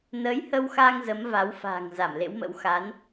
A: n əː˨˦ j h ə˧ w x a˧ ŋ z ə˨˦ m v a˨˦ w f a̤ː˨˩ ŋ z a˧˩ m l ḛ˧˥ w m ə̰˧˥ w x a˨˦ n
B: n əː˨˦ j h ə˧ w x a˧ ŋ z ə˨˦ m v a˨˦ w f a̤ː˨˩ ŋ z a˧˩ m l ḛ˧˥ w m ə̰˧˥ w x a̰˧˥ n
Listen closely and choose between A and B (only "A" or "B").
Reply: A